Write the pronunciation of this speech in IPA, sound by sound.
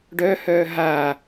ɖ œ h œː ɦ a

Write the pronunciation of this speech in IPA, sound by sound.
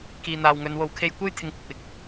k iː˨ n̪ aː˨ w ŋ ɵ˨˧ n w o˨ w kʰ e˧ j kʷ e˥ j t̪ʰ ɪ˧ ŋ kʷ ɐ˨ k̚ w ɪ˨ k̚

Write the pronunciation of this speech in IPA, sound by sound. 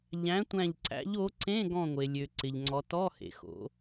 ʎ æ̃˨˥ tʷ æ̃˧˩ ʎ ǀ æ̰˨˥ ʎ o˨˥ ǀ ẽ˧˥˧ ɡ ɔ̃˧˩ ŋʷ e˩ lʲ ø˩ ǀ ɪ˩ ʎ ŋ͡ǀ ɔ˩˧ t ɔ˧˥˧ h ḛ˩ x o̰˩˧

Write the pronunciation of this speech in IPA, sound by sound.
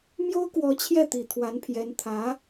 m j o˥ ʊ̯ k w ɔ˧˥ t͡ɕʰ j ɛ˥˩ t̪ i˨˩ t̪ʰ w a˧˥ n pʰ j ɛ˧˥ n t̪ʰ ä˧˥

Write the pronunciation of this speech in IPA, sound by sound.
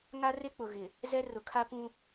ŋ a˦ r e˦ k͡p ʊ˨ ɣ ɪ˨ | z ɛ˦ r ʊ˨ kʰ a˦ p ũ˦

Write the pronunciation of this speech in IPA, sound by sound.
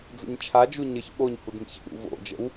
d͡z ə̰ ɲ t͡ʃʰ a d͡ʒ u ɲ ə ç ɓ o ɲ h u d m ḭ ç ə̰ ɗ ṵ v o̰ d͡ʒ ə̰ w

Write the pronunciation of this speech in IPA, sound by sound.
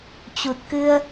t͡ɕ u˨˩ t̚ k ɨ˧ ə̯

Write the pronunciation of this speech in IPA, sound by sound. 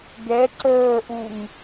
ɡ ɛ ǀ əː ʔ u ŋ

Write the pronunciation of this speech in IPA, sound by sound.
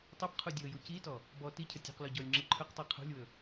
tˤ ɵ b qʰ u dʲ ɤ j u c i t ɔ | b ɔ t i cʰ ə tʲ ṳ q l ɔ ɟ ɔ lʲ ŋ͡ǁ ɯ ǃʰ ɵ q tˤ i qʰ ṳ lʲ w ɵ

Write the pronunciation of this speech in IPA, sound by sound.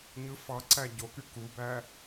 ɲ ɯ f ɑ ǀ æ ɟ o k y k u b æ

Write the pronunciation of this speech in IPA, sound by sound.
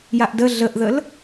j a ʔ d ə ɮ ə ʔ ð ə l

